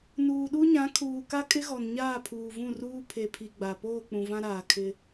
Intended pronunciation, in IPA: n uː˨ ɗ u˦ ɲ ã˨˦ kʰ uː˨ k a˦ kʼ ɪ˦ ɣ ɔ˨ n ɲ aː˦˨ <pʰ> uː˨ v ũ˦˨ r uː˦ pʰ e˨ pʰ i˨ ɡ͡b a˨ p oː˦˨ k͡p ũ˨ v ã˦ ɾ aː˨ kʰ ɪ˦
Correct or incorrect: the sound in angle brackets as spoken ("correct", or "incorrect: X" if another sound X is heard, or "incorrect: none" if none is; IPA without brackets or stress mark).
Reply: correct